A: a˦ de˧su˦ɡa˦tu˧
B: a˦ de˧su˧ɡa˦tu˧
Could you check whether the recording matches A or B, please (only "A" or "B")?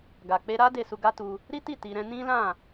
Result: B